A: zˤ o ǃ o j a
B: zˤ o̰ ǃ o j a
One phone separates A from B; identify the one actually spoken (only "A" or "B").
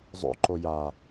B